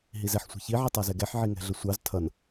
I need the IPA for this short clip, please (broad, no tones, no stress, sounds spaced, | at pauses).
ɦ i z ɛ ħ sʷ i̤ ç i ʕ i tˤ æ z ɛ ɡ ɛ ħ ʕ i ŋ ɛ̤ ɮ ə sʷ ɑ z tʰ ʌ n